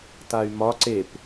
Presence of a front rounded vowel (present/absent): present